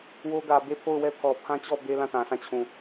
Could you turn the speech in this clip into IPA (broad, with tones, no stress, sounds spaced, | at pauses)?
w o˦ ɡ ä˨ b e˦˨ pʰ o˦˨ ʊ̯ w ɛ˦ pʰ ɔ˨ pʰ ã˦ t͡ɕ ɔ˦˨ b e˦ l ã˦˨ t ã˨ s ã˦˨ t͡ɕʰ ũ˨